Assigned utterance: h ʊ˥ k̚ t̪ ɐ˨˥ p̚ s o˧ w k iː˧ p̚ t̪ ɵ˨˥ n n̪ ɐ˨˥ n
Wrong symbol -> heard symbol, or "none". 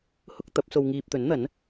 k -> ŋ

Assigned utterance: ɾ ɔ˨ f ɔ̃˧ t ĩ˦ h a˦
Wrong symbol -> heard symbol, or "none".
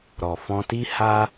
ĩ˦ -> i˦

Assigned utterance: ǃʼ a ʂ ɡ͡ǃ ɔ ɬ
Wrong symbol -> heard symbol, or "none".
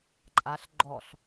ʂ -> ɬ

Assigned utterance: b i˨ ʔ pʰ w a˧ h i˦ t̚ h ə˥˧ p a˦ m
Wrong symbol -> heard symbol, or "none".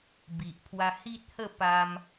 none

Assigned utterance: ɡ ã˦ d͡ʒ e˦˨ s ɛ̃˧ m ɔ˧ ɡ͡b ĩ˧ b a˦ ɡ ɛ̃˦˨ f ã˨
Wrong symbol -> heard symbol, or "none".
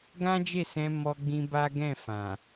none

